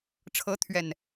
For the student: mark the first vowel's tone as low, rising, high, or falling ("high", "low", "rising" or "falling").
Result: rising